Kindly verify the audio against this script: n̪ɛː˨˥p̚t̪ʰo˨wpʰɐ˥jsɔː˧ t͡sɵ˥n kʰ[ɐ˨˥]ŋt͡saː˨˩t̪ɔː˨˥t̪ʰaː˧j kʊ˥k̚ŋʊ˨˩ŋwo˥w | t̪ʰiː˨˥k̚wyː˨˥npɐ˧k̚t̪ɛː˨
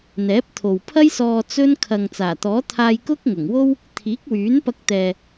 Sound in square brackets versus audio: incorrect: ɐ˨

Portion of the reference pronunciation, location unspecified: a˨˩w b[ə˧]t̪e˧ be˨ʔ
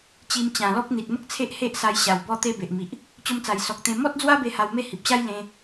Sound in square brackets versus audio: incorrect: ɔ˧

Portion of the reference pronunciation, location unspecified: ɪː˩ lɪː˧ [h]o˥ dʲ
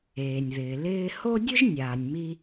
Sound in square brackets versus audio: correct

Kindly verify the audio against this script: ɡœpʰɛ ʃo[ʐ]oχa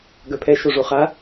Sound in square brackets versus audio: correct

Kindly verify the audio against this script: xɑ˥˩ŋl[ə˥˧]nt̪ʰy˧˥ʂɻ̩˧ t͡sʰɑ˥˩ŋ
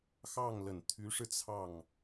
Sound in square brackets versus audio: incorrect: ə˨˩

